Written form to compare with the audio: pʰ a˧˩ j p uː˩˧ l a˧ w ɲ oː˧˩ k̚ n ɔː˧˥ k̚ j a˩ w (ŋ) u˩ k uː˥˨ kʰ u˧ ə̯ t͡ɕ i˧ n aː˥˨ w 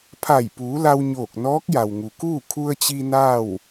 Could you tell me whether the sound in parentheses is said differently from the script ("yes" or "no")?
no